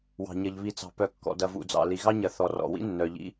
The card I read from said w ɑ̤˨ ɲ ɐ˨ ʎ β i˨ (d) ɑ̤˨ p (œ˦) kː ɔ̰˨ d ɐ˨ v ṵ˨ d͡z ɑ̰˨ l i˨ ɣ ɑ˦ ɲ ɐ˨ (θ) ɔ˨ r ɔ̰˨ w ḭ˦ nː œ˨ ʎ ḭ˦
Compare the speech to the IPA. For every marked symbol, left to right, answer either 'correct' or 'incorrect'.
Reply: incorrect: t͡s, incorrect: œ˨, correct

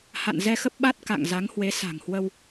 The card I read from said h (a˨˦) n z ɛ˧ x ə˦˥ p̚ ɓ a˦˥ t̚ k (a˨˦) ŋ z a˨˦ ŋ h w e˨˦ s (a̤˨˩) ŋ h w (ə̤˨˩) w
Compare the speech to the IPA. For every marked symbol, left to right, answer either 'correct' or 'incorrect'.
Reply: incorrect: a̰˧˨, incorrect: a̰˧˨, correct, incorrect: ə˧

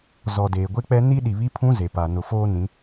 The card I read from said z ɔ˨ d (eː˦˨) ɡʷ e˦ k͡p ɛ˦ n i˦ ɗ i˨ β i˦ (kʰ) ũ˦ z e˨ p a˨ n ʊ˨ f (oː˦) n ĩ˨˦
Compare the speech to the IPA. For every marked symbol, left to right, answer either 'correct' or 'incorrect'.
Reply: incorrect: eː˨, incorrect: pʰ, correct

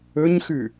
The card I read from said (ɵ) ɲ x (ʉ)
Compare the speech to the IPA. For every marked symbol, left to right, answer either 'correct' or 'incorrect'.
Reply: correct, correct

